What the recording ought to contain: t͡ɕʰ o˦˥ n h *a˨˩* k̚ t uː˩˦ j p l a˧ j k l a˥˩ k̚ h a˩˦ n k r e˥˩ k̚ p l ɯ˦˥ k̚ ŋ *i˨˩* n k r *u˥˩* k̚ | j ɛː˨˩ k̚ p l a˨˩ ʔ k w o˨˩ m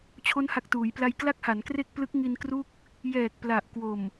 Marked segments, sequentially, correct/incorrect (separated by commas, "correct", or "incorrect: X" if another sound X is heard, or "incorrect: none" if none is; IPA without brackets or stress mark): correct, incorrect: i˧, correct